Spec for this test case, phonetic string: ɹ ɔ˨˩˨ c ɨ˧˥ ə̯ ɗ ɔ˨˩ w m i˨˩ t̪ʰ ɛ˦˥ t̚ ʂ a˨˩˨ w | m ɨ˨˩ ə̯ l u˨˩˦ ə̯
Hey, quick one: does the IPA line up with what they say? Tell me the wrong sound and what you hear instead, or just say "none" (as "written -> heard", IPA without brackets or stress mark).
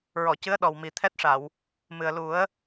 none